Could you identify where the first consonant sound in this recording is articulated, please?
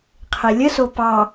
uvular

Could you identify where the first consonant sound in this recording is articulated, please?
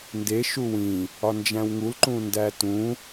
alveolar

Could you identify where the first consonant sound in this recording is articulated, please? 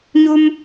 palatal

